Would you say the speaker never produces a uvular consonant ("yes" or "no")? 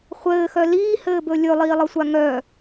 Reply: no